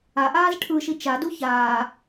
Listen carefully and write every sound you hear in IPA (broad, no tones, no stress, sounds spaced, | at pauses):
a ʔ aː z ʈʰ ɯ ʃ i t͡ʃ a d u ç aː